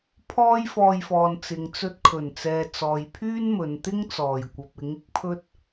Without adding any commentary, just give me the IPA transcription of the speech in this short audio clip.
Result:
pʰ ɔː˥ j f ɔː˧ j f ɔː˨ n t͡s ɪ˨ ŋ t͡s ɵ˧ t̚ kʰ ɵ˨˩ n t͡s ɛː˨ t͡s ɔː˨ j pʰ yː˥ n m ɵ˨˧ n t̪ ɪ˥ ŋ t͡s ɔː˨˩ j kʷ ɐ˨ p̚ ɪ˨˥ ŋ ɪ˥ k̚ pʰ ɵ˥ t̚

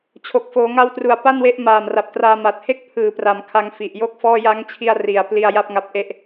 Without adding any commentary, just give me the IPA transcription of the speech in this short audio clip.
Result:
t͡ɕʰ o˨˩ k̚ f oː˩˦ ŋ a˦˥ w t r u˨˩ a̯ p a˥˩ n w e˦˥ ʔ m aː˨˩ m r a˨˩ p̚ t r aː˧ m a˨˩ t̚ h e˥˩ k̚ pʰ ɯː˩˦ p r a˩˦ m kʰ a˧ ŋ f i˨˩ ʔ j o˥˩ k̚ f ɔː˥˩ j a˦˥ ŋ t͡ɕʰ i˧ a̯ r i˨˩ a̯ p l i˧ a̯ j a˥˩ p̚ ŋ a˦˥ p̚ ʔ e˥˩ ʔ

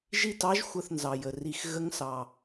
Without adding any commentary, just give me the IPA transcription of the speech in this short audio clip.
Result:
ʒ i˦˨ t ɑ˧˥ ʒ xʷ ə˦˨ θ n z ɑ˨˩ j ə˨˩ r i˨˩ x ɣ ə˧˥ ŋ s ɑ˨˩

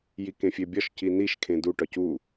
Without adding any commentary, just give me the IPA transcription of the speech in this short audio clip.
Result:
j i k ẽ fʲ e bʲ ɒ ʃ c i n i ʃ kʰ ẽ d u ʈ ɒ c u

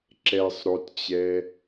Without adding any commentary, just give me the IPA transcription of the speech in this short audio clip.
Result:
ǁ ɛ sˤ ɾ o t t͡ɕ ɛ

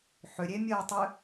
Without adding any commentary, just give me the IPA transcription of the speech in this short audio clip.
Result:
ħ ʏ ɾʲ e mʲ əː tˤ ʏ

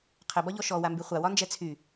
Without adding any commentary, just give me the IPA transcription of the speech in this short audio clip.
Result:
qʰ ɘ b ɒ ʎ ɔ ʃ ɔ w a m b y χʷ a w ɒ n d͡ʒ ɛ t͡sʰ y

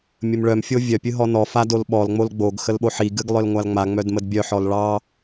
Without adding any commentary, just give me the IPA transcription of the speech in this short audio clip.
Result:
mʲ ə m ɭ œ m fʲ o vʲ œ pʲ ɨ ɦ ɔ n ɔ f a d o l ɓ ɔ l ŋ͡m o l ɡ͡b o ɡ x ə l ɓ o ħ i ɡ ɨ ɡ lˠ œ l ŋʷ a l ŋ͡m a ŋ͡m œ d m ə d bʲ œ ħ ɔ l ɭ ɑ

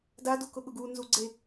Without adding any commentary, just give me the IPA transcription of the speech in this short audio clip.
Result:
d a d u k ʊ ɠ ʊ ɡ u n z u ɡ͡ǀ e

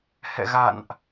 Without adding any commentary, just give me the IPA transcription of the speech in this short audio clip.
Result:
h ɛ̰˧˨ ɣ a̰˧˨ n ʔ

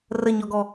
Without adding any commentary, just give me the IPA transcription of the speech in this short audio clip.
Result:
r ə ɲ ɔ ɡ ɔ

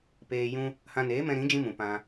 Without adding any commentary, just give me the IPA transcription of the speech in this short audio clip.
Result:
p eː˧ j ũ˧ | h ã˧ n eː˨˦ m ɛ̃˧ ɾ ĩ˨˦ d͡ʒ ĩ˧ m ũ˨ p ã˧

